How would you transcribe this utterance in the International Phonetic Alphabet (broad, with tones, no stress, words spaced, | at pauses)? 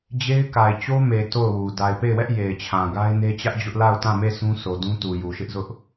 d͡ʑe˦ɪ̯ ka˨ɪ̯t͡ɕo˦ me˨ to˦˨ʊ̯wu˨ da˨ɪ̯pe˦˨ɪ̯wɛ˦ʔ je˨ɪ̯t͡ɕʰã˨ ɡa˦ɪ̯ne˦t͡ɕä˦ʔd͡ʑʊ˦ʔ la˦˨ʊ̯tã˦˨me˦˨ sũ˦sʰo˨dũ˦ tu˨ju˨ʃɪ˦ʔzʊ˦ʔ